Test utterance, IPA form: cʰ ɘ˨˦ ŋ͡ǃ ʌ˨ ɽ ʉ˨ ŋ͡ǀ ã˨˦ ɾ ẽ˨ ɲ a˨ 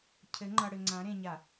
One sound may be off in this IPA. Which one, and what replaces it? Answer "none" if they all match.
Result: ʉ˨ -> ɘ˨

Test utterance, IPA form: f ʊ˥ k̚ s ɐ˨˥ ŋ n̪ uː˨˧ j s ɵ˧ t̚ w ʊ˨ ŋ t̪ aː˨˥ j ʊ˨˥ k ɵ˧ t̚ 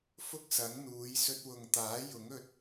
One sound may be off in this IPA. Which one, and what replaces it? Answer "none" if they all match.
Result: k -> ŋ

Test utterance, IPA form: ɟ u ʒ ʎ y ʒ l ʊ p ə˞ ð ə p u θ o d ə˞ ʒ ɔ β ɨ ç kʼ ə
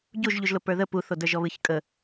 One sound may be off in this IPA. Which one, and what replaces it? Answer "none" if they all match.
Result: y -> u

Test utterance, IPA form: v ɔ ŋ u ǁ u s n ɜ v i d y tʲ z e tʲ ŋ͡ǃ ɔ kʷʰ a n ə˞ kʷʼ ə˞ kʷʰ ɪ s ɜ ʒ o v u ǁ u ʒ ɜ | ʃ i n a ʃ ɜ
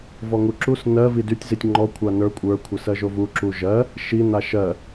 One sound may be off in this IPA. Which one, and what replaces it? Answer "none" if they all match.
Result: e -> i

